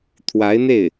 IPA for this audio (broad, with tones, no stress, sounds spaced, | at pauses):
t̪ʰ w a˧˥ ɪ̯ n̪ e˥˩ ɪ̯